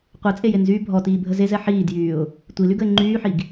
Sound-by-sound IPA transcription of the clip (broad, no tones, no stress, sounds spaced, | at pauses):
qʷ e t͡sʼ e j e n z yː bʱ ɔ t iː bʱ ə z e z ɛ ħ iː d j yː ʊ̯ | tʷ i l y ɡ ə ɪ̯ ŋ͡ǃ yː ħ i ɡ